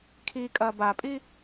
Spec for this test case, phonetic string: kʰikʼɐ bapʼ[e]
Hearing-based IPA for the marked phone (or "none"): i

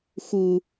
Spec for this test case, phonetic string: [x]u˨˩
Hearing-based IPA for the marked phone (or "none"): x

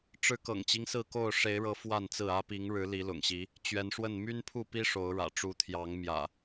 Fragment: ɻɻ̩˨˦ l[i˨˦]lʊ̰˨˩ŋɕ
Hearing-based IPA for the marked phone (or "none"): i˨˦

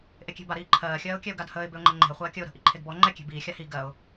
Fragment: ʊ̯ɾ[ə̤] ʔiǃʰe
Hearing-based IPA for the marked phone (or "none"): ə̤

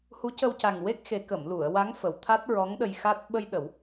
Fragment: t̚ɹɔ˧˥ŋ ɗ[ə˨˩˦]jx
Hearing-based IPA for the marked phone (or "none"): ə˧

